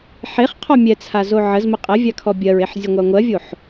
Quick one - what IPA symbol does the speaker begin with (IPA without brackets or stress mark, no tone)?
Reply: ħ